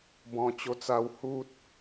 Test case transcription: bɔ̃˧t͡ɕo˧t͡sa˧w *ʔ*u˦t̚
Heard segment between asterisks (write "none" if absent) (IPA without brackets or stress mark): h